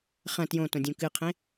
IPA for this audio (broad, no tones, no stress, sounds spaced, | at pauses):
χ ɐ̃ t j õ t õ dʲ ũ k ɨ qʰ ẽ